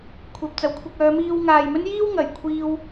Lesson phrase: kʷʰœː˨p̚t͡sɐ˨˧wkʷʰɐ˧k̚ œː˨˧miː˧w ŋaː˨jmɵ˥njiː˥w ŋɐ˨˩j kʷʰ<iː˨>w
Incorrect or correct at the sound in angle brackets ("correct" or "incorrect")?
incorrect